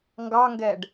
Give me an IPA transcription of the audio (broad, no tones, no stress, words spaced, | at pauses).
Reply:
ŋɡɑŋɡɛɖ